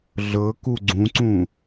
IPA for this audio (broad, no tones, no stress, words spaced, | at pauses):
ɮɤku ɡ͡ǀũǀũ